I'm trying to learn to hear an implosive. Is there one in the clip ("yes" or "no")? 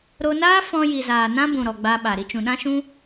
yes